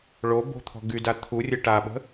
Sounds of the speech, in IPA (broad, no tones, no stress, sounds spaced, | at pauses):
ɭ o b o̤ t̪ʰ ɔ̤ ɡ y d a t̪ʰ u rʲ ə ʈ a ɓ ə̤